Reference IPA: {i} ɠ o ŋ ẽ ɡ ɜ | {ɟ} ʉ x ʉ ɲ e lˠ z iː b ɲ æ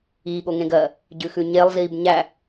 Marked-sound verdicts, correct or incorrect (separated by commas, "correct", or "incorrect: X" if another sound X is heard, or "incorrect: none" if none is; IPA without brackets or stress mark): incorrect: iː, correct